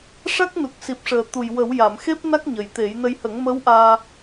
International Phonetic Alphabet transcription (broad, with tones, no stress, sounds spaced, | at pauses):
ʂ a˦˥ k̚ n u˨˩ k̚ s i˨˩ p̚ ʂ əː˨˩ t̪ u˨˩ j w ə˨˩˦ w j a˨˩˨ m x e˦˥ p̚ n a˦˥ k̚ ɲ ə˨˩ j t̪ e˨˩˦ j n ə˧ j h ə˨˩˦ ŋ m ə˧˥ w ʔ aː˧